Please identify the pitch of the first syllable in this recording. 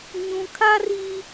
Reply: low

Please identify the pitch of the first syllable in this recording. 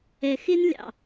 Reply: low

